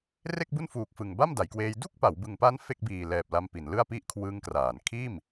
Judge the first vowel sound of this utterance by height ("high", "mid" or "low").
mid